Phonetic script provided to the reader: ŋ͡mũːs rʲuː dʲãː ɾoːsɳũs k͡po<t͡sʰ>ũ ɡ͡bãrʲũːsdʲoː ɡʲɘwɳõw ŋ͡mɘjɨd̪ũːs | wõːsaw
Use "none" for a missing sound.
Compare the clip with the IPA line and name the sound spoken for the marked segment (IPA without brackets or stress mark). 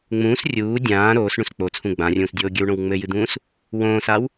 t͡sʰ